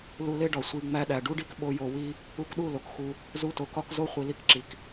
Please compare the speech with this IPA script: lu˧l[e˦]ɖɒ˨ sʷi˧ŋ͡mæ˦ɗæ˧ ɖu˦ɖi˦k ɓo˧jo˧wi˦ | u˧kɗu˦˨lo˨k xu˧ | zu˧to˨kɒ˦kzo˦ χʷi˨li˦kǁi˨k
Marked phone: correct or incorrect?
correct